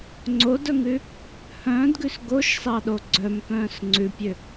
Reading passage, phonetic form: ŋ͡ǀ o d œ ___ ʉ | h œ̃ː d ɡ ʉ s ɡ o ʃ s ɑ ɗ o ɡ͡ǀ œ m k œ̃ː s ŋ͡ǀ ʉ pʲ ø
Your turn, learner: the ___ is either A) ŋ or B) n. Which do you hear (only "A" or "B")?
A